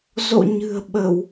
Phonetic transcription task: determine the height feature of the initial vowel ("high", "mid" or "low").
mid